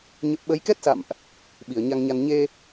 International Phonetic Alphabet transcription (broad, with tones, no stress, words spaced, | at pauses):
ɲə˦˥p̚ ɓə˨˦jkɛ˦˥t̚sa̰˧˨mʔ | ɓi˧˩ə̯ɲa˧ŋɲa˧n ɲe˧